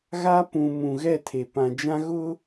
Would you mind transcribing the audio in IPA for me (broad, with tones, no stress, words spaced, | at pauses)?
ɣa˦pũ˨ mũ˨ɣɛ˦˨tʰe˨ pã˨d͡ʒã˦ ɣʊ˦